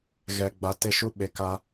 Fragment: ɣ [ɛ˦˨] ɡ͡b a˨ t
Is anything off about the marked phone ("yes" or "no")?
yes